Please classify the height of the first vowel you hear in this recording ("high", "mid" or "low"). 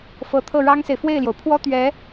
mid